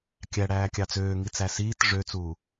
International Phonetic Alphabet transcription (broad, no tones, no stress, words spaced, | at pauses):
kʲæɽæːkʲɑ t͡søːŋit͡sæ siːt ʐøt͡suː